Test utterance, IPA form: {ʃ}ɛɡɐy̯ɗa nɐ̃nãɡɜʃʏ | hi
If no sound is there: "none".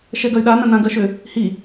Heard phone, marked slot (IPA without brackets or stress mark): ʃ